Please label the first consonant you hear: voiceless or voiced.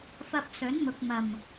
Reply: voiceless